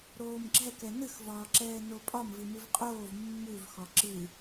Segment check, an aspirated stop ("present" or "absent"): absent